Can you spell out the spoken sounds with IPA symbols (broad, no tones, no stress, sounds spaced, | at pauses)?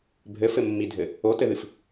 bʱ ɘ f ɘ mː i dʱ ɘ | o t ɘ ð ɨ f